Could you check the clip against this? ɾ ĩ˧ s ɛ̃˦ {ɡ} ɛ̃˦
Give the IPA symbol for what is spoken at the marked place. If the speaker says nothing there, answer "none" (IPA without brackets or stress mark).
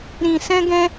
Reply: ɡ